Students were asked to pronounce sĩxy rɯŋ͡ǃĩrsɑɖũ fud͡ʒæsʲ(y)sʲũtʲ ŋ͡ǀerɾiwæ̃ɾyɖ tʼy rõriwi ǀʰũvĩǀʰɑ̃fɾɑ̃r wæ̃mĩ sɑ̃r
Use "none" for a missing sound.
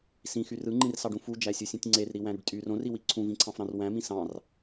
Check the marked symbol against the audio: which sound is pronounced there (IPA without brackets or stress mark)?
u